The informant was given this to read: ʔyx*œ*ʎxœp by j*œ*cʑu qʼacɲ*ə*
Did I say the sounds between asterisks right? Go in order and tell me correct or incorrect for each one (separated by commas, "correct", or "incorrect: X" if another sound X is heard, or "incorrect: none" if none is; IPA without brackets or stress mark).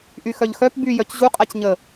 correct, correct, correct